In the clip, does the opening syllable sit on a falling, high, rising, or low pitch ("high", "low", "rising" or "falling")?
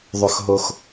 high